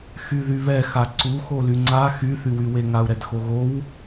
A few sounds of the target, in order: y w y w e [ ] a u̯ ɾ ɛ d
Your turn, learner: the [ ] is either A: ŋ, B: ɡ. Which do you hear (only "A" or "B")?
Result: A